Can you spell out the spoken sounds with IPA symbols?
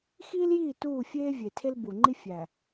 x iː˦ l j iː˦˨ t uː˦˨ fʲ eː˦ vʲ e˨ tʰ e˦ l b u˨ ŋ͡ǃ i˦ fʲ æ˨

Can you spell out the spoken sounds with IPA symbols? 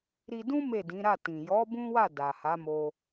ɾ i˧ d ũ˦ m e˦˨ d ĩ˨˦ ɾ a˦˨ t ĩ˨ j ɔ˨˦ b ũ˦ w a˦˨ d a˨ h a˨˦ m o˧

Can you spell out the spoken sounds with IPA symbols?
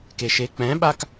k e ʃ e k͡p ɛ̃ ɓ a k

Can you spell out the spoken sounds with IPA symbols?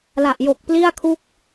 l a˨˩ ʔ j o˨˩ k̚ p l i˥˩ a̯ kʰ u˥˩ k̚

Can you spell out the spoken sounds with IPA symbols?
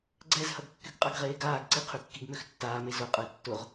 ɡ͡ǀ ɛ z h ɐ ɡ kː y ɡ qʼ a ɡ ʁ eː ɡ aː ɡ ǀ i qʰ y kː i ɡ m ø x tː aː m e z ʊ qʼ ə e̯ tː ʊ ʁ

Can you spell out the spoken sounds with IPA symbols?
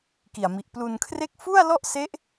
k i˨˩ a̯ m i˨˩ ʔ p l u˧ n kʰ r e˥˩ k̚ f u˥˩ a̯ l ɔ˥˩ ʔ s e˦˥ ʔ

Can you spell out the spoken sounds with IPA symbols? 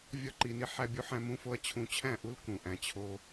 vʲ ɒ˦ ǃ i˧ n i˦ ħ æ˦ bʲ u˦ ħ æ̃˦ m ũ˦ f o˦ ɐ̯ t͡ɕʰ ũ˧ t͡ɕʰ æ̃˦˨ ʔ u˦ l k ũ˧ ʔ æ̃˦ t͡ɕʰ o˦

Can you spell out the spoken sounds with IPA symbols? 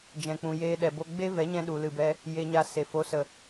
d͡ʒ ɛ̃˨ k͡p ũ˨ j eː˧ ɗ ɛ˨ b o˧ ɡ͡b e˦ v ɛ˨˦ ɲ ɛ̃˧ ɗ u˨ l ɨ˨ b ɛ˧ | j e˨ ɲ a˨ s e˨ f o˨˦ s ə˨

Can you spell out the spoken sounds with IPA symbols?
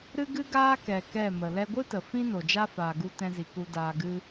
ɾ ɨ˦ ɡ ɨ˦ ɡ aː˦ k ɛ˨ k ɛ˦˨ m ə˨ l ɛ˧ ɡʷ ɨ˦ t ə˨ f ĩ˦ n o˨ d͡ʒ a˦ f aː˧ ɡ u˦ t ɛ̃˦ z i˧ k u˧ d aː˧ ɡ ɨ˦

